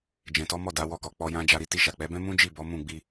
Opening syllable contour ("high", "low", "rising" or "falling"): low